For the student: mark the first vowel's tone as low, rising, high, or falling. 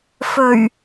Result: low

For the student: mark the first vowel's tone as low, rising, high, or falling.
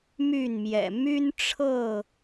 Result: falling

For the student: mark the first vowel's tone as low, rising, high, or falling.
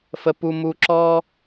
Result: low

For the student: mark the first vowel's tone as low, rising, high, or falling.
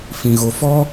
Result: low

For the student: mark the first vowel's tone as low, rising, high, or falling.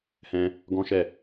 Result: high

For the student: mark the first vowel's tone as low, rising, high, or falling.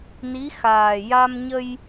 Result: rising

